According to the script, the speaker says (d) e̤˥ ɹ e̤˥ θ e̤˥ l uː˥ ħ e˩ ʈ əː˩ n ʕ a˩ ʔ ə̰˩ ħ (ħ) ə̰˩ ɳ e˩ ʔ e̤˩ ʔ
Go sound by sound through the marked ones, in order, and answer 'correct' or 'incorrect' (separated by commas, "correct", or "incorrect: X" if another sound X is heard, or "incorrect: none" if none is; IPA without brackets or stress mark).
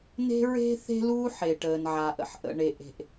incorrect: n, incorrect: ʔ